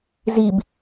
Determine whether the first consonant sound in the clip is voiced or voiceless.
voiced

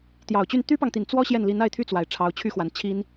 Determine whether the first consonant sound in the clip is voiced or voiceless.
voiceless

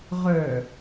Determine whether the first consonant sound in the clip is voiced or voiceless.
voiced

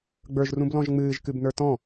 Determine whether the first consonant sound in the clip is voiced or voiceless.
voiced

